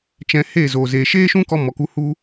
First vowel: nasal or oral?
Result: nasal